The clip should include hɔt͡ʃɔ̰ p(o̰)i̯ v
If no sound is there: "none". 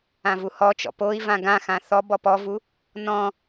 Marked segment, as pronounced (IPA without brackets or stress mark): o